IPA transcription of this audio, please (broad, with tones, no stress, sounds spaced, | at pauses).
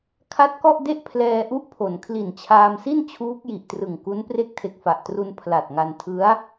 kʰ a˦˥ t̚ k ɔ˥˩ ʔ d e˥˩ ʔ pʰ l ɛː˧ ʔ u˦˥ ʔ pʰ o˩˦ n kʰ l i˨˩ n t͡ɕʰ aː˧ m s i˥˩ n t͡ɕʰ uː˦˥ k̚ j i˨˩ ʔ t r ɯ˨˩ ŋ k u˦˥ n p r e˦˥ k̚ tʰ e˨˩ k̚ f a˨˩ ʔ t r u˧ n pʰ l a˨˩ t̚ ŋ a˧ n tʰ ɯ˦˥ a̯